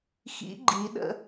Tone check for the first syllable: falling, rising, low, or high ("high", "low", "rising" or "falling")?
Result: rising